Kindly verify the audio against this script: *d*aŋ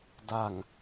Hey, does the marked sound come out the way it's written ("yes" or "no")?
yes